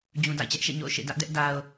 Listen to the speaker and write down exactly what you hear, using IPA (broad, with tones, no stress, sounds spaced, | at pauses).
d͡ʑ ũ˨ d a̰˦˨ ɪ̯ t͡ɕ ɛ˦ ʔ ʃ ḛ˦˨ ɲ o̰˦˨ ʊ̯ ʃ ḛ˦˨ d ä˦ ʔ d ɛ˦ ʔ d a˦ ʊ̯